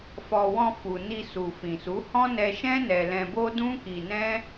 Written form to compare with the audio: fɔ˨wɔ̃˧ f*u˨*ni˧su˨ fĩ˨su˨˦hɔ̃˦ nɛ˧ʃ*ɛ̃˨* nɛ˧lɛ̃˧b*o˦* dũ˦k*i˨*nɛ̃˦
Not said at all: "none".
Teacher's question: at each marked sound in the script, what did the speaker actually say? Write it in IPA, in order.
u˨, ɛ̃˦, o˦, i˧

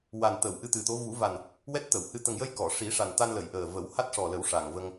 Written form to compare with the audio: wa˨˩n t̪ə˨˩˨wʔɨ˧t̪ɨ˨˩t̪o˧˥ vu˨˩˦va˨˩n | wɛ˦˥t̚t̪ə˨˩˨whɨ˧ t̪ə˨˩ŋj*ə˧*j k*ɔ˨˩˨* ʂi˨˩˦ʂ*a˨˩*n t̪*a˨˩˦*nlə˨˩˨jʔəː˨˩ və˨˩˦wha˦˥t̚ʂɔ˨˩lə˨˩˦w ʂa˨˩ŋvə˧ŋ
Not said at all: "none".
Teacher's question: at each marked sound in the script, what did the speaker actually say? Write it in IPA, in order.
ə˧, ɔ˨˩˨, a˨˩, a˧

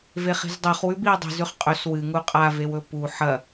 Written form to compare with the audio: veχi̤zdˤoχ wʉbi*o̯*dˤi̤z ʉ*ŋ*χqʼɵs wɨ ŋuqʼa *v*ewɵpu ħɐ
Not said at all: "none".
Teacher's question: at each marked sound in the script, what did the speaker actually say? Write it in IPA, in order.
o̯, none, v

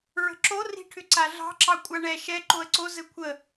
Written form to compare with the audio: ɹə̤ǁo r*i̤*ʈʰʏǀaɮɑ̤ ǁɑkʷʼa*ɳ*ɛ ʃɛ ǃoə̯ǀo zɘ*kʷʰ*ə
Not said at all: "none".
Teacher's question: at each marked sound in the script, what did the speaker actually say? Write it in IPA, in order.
i̤, ɳ, kʷʰ

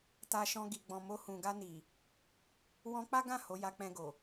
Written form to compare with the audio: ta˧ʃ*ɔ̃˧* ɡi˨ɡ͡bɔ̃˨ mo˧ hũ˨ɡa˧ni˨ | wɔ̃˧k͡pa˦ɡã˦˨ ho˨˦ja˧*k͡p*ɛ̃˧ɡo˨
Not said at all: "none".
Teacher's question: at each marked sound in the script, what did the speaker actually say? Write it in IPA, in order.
ɔ̃˧, k͡p

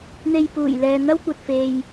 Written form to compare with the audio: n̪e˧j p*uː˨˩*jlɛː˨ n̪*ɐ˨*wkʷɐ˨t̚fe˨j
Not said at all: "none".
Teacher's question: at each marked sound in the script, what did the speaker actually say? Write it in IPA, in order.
uː˨˩, ɐ˥

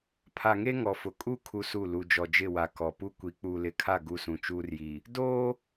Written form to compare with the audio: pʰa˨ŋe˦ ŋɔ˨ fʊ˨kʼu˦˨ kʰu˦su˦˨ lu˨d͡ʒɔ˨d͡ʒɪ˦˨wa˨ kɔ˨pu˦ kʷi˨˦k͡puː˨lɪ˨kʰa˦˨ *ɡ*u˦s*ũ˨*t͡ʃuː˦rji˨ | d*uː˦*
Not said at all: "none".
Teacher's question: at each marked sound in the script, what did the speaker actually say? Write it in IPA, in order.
ɡ, ũ˨, oː˦

